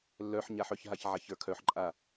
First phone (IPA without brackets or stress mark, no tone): lː